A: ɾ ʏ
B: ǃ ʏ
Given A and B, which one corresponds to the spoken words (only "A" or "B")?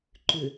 B